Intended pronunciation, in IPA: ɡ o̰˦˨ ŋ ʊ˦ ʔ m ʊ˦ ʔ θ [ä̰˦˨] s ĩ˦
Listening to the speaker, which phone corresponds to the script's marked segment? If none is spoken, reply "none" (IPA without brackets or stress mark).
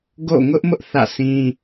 ä̰˦˨